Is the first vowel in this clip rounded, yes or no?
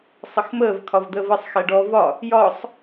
no